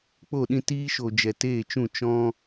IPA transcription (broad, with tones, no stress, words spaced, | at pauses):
k͡po˦˨ɗĩ˦ tiː˦ʃo˨d͡ʒɛ˨ teː˦˨t͡ʃũ˦˨ t͡ʃɔ̃˦